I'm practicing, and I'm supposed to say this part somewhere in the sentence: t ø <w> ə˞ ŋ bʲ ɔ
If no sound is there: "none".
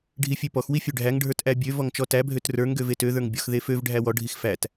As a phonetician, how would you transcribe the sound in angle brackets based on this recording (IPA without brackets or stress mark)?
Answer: ð